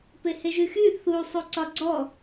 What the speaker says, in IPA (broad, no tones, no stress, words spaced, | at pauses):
peheʒyxy θu sˤuǀɒɡ͡ǀɔ